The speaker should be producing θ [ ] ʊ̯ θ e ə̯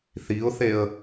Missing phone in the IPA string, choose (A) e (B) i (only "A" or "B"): B